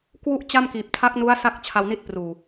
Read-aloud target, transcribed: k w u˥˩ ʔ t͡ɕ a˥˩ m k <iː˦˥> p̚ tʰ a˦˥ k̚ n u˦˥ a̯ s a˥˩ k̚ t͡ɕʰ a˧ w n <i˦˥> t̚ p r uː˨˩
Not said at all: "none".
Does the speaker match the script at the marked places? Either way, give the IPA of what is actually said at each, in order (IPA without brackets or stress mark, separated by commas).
iː˨˩, i˦˥